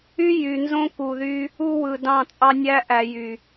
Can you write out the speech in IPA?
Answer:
y˦ j y˨ n z õ˦ k u˨ ð y˦ | u˦ w ɯ˨ d ɑ̃˦˨ t͡sʼ ɑ˦ nʲ æ˦ ʔ æ˨ j y˨

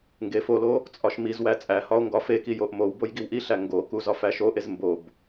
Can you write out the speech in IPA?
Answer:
ŋ ɡ e f o l o | t͡sʼ ɒ ʃ m i z w æ t͡sʼ æ h ɒ o̯ ŋ ɡ ɒ f e k i j o ʔ m o w b o j ɡ i w ʔ i ɬ æ ŋ ɡ o k u z ɒ f æ ʃ o ʔ e z m b o b

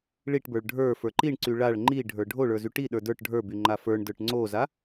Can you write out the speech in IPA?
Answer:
ɭ i ʈ b ə˞ ɭ ɖʱ ə˞ f ə˞ ǃ i ɳ ǀ y ɭ a ɭ ŋ͡ǃ i ɖʱ ə˞ ɖʱ o ɭ ə˞ z y ʈ i ɗ ə˞ d ə˞ ʈ ɖʱ ə˞ b y ŋ͡ǃ a f ə˞ ɳ d ə˞ ʈ ŋ͡ǀ o z a

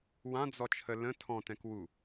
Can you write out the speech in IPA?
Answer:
w ã d͡z ɔ t͡ʃʰ ə l ə̃ tʰ ɔ̃ t ɛ̃ k w u

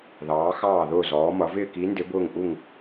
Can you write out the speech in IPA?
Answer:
ð ɑː˩˧ x ɑː˧˩ ð ʊː˧˩ z ɔː˩˧ m ʌ˩˧ v ɪː˧˩ k i˩˧ n d ɪ˩˧ b ʊː˧˩ ŋ ʔ u˧˩ ŋ

